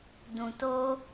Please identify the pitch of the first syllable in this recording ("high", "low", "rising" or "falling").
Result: low